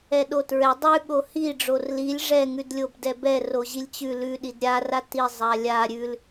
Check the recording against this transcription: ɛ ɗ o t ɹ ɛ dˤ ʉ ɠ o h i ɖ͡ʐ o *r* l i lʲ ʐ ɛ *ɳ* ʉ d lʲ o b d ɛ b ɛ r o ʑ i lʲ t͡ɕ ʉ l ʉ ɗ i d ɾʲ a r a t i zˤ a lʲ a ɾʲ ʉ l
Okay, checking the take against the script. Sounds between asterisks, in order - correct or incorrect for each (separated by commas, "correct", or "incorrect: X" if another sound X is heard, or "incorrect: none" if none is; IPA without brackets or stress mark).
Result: correct, incorrect: ŋ